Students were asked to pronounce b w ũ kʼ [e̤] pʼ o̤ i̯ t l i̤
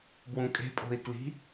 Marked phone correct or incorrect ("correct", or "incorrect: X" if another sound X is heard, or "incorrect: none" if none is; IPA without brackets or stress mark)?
correct